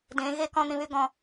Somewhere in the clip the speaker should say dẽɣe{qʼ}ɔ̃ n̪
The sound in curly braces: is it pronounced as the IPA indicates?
no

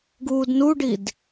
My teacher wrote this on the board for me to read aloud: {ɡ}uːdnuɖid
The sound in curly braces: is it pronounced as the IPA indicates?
yes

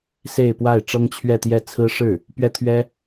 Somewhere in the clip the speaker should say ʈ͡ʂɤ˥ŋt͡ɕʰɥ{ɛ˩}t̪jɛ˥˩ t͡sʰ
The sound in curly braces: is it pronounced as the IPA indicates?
no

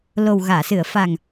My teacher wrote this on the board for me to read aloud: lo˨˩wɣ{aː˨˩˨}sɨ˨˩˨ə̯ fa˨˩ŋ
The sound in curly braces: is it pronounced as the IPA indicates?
yes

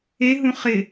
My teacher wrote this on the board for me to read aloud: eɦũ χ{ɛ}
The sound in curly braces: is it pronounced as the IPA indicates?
no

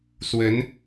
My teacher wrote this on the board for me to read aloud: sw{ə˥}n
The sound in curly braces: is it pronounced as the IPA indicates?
no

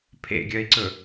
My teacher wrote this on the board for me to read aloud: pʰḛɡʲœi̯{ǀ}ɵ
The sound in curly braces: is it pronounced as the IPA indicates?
yes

